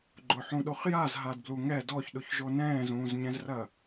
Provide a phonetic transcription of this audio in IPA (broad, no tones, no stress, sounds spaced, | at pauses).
ɡ͡ǃ ʊ ħ ũ ɗ o χ j a z ɦ a d b l u ŋ ɛ d ɔ ç ɗ ʊ ç ʒ o n ɛ̃ː z ũː z ɲ ɛ̃ z r ɐ